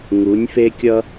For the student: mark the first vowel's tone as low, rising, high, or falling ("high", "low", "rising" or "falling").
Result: rising